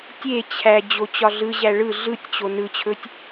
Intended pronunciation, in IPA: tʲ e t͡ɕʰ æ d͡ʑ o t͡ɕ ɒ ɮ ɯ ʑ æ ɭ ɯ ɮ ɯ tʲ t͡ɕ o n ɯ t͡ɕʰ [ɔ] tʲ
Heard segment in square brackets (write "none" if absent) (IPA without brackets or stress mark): ɵ